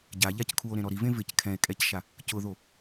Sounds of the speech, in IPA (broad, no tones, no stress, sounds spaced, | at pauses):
ɟ a ʎ a c kʰ u o̯ ɾ ẽ ɾ ɔ ɾ i v ẽ v ɪ c kʰ ɛ̃ e̯ kʼ ɛ c ʃ a | c ʊ ð o